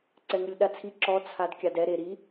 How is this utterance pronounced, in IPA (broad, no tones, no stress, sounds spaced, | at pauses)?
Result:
ǀ ɛ ŋ ɯ lʲ ɗ a t͡sʰ i ǁ ɔ t͡sʰ a d kʲ a d ɛ ɾ e ɾ i